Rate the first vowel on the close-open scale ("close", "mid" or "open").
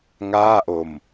open